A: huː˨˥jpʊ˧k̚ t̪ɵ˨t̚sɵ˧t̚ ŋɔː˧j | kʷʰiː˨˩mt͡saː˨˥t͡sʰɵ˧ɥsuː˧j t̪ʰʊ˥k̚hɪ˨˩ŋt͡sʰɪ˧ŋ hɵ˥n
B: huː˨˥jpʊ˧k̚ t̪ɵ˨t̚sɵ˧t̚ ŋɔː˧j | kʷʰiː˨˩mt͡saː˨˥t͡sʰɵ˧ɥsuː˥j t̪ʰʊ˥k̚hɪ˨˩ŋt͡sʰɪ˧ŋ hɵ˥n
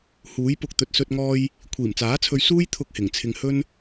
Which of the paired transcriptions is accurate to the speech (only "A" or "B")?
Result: B